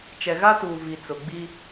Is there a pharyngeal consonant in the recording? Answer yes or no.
no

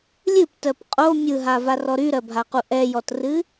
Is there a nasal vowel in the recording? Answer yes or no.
no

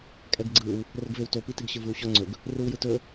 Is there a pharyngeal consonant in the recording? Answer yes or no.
no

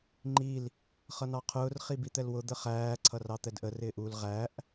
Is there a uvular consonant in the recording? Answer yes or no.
yes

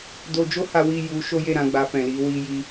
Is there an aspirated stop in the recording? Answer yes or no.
no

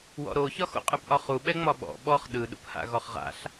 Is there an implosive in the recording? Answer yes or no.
yes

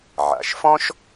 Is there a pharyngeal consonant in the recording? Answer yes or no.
yes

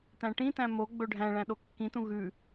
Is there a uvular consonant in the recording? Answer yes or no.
no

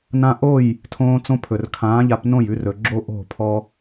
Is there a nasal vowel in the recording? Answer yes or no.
yes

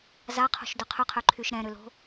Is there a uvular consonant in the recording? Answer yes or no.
yes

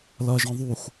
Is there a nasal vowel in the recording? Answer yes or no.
yes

